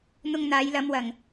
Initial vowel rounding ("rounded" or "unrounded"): rounded